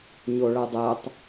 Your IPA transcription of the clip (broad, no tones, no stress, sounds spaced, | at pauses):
ɲ o ɭ ʌ dˤ æ tˤ